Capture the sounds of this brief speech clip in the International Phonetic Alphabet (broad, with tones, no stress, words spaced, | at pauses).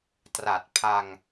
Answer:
tra˨˩t̚ pʰa˧ŋ